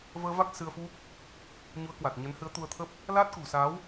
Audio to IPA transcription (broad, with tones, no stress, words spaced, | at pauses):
vəː˧va˦˥k̚ sɨ˧ə̯fu˦˥k̚ | ɲu˨˦ə̯kwa˨˩t̚ ɲə˨˦nhɨ˨˦ə̯t̪u˧ə̯t̪ʰə˦˥p̚ | laː˦˥t̚kṳ˨˩sa˨˦w